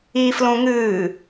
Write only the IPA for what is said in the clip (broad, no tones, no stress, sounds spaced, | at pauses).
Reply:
i f l õ ŋ ɨː